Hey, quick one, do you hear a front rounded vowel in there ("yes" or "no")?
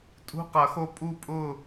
no